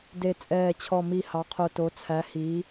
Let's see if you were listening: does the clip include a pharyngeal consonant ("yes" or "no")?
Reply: no